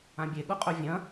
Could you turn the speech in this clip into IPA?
ã bʲ e ɠ u qʼ ɵ vʲ ɐ̃

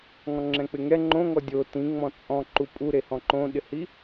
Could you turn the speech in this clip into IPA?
ŋ ɔ̃ ŋ͡ǁ ɛ̃ k͡p ɪ ŋ ɛ ŋ͡ǃ õ ŋ ɔ dʲ o t ĩ ŋ͡m ɔ̃ t͡sʼ ɔ̃ ǃ u pʼ u ɾ e h ɔ̃ ǃ õ ɗ ɪ h i

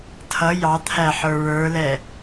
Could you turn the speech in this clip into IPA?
tʰ ʌ j ɑ t̪ʰ æ ħ ə˞ ɹ ə˞ l ɛ

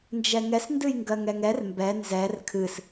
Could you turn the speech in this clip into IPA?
n d͡ʒ ɛ ŋ ɛ s n d ɨ j ŋ ɡ ɜ ŋ ɛ ŋ ɛ r m b ɛ n z ɛ r kʰ ɨ s

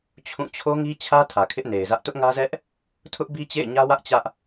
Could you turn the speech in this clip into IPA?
t͡ɕʰ ũ˦˨ t͡ɕʰ o˦ ŋ i˦ t͡ɕʰ ä˦ tʰ ä˨ kʰ ɪ˦ ʔ n e˨ ɪ̯ z ä˦ ʔ t ʊ˦ ʔ ŋ ä˦ z ɛ˦ ʔ | tʰ ʊ˦ ʔ b i˦ t͡ɕ ḛ˦˨ ɪ̯ ɲ ä˦ w ä˦ ʔ t͡ɕ ä˦ ʔ

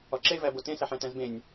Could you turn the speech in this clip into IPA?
ɒ ǁ e v æ b o t ẽ s æ ħ æ̃ t æ̃ z b ẽ nʲ

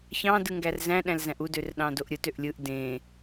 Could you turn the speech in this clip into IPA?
ç ɑ̃ d ɯ ŋ ɡ æ r z æ̃ ɗ æ̃ l z æ̃ ʔ u d ø r ɗ ɑ̃ d o ʔ ɾʲ ɯ t ø ʔ lʲ ɯ ʔ d ẽ

